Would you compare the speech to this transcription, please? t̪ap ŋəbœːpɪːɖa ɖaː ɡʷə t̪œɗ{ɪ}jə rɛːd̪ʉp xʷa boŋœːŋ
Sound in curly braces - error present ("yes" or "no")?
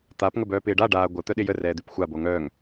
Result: no